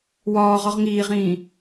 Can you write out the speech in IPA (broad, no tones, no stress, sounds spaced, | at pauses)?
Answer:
w ɒː ʁ ɒ ʁ ŋ iː ʁ ĩː